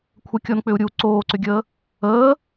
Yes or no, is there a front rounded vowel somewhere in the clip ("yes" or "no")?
yes